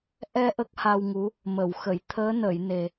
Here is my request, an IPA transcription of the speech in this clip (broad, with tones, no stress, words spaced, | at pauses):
ʔɛ˧ ʔə˦˥k̚ha˧wŋu˧˥ | mə˨˩˨wxə˨˩˨j t̪ʰəː˧˥nə˨˩˨jne˨˩